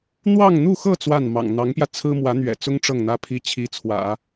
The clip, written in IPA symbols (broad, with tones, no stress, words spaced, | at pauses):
n̪wɑ˥˧ŋn̪u˥˧xɤ˥˧ t͡swa˥˩nmɑ̰˨˩ŋ n̪ɑ˧˥ŋpjä˧ t͡sʰɹ̩˥ mwä˧˥n̪ɥɛ̰˨˩t͡sʊ˥ŋ ʈ͡ʂɤ˥˩ŋn̪ä˥pʰi˥ t͡ɕʰi˧˥t͡sʰwä̰˨˩˦